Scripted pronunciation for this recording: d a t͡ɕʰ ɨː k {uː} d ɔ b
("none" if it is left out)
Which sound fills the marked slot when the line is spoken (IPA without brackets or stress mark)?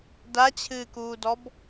uː